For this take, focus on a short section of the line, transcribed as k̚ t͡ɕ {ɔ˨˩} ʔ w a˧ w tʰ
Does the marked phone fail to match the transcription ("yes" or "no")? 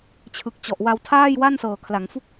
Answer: no